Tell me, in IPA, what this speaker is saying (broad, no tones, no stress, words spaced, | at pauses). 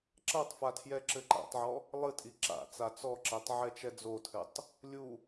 ǁɐtˤfa tʰjɛǁɘǃa̰tˤʕɔ | lˠɨtʼi ǁa̰ t͡sat͡sɔǁɛtˤ ʕɛt͡ʃɛd͡zotʰɘtˤ | lʲu